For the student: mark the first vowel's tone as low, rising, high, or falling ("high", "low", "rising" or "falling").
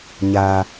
high